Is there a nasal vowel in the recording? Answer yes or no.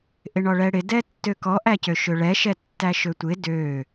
no